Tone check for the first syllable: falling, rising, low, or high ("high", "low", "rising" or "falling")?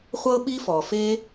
high